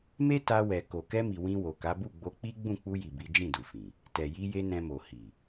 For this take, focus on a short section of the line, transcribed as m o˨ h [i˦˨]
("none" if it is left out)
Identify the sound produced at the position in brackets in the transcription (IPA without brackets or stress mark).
i˨